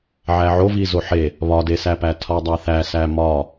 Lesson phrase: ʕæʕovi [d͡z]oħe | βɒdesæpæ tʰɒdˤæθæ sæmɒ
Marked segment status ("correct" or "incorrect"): incorrect